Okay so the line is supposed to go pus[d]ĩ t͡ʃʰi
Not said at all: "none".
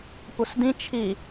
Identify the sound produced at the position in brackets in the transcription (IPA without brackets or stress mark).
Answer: d